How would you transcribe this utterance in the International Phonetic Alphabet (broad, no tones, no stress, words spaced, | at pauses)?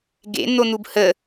ɡḛn̪on̪ub hə